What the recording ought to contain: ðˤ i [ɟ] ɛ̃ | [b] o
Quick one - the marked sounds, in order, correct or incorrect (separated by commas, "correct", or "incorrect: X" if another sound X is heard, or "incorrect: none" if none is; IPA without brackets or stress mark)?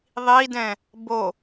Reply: incorrect: d, correct